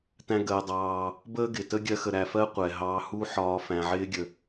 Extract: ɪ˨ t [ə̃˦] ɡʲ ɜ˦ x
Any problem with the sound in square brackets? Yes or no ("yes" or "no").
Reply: yes